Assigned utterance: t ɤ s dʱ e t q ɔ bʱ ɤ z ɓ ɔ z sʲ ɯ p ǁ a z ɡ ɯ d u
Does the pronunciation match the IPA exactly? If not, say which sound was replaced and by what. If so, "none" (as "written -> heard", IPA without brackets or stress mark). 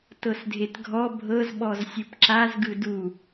q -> ɡʱ